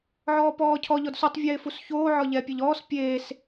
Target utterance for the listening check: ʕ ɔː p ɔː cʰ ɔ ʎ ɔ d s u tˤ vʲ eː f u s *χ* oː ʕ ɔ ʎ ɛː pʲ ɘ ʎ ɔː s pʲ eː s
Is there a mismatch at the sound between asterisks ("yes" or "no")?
yes